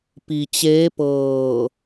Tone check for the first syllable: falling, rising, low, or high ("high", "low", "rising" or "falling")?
low